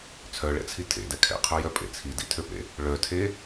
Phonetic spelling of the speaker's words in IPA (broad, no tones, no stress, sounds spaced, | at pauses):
t͡sʰ œ ɭ ɛ̰ t͡sʰ i tʰ ḛ d ɛ kʰ ɛ̰ qʰ œ j œ pʼ ḛ t͡sʰ i d ḭ tʰ ø p ḛ | ɭ œ tʰ e